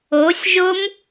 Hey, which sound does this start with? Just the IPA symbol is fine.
o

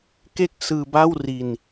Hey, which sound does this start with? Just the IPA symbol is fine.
k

